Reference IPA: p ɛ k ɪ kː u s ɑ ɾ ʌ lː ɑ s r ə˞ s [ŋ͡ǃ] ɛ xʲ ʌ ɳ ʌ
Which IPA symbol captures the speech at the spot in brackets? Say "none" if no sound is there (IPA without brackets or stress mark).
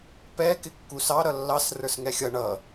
ŋ